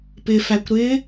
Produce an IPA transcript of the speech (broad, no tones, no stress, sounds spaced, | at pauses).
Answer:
p ɪ f æ kʷ ɾ ɪ